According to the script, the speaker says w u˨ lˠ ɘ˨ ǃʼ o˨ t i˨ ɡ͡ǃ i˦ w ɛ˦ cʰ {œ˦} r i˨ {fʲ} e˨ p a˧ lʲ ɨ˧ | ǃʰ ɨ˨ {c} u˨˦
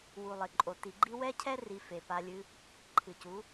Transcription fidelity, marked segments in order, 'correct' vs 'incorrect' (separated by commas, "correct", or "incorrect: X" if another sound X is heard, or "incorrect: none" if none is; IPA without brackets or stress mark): incorrect: ɛ˦, incorrect: f, correct